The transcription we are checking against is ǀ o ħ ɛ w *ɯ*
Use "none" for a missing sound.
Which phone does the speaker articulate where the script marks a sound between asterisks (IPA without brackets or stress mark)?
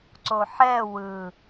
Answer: ɯ